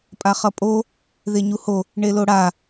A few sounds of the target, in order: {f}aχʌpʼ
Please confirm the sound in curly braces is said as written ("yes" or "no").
no